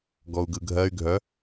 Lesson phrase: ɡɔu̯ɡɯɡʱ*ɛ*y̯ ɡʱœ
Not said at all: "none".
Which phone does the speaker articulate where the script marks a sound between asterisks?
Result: ɜ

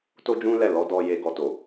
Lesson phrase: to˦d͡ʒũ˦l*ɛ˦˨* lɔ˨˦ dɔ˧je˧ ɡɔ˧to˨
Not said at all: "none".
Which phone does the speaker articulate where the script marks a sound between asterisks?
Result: ɛ˦˨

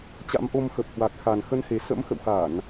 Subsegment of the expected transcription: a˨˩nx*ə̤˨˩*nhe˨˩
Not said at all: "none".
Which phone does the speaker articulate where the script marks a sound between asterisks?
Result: ə˨˦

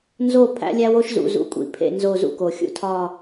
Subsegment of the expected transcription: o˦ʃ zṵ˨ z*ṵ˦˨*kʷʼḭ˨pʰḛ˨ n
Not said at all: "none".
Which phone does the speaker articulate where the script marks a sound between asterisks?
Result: ṵ˨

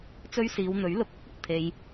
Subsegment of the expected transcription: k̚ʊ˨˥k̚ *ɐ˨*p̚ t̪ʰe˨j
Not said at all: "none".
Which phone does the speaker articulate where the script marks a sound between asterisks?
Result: ɐ˨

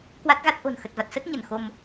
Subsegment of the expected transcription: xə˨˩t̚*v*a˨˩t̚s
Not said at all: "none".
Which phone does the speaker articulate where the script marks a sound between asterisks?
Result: v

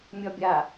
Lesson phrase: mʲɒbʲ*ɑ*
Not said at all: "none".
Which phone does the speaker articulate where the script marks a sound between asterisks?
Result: a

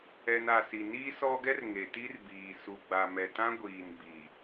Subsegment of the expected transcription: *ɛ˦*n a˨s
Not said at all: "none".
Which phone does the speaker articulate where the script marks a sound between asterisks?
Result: ɛ˨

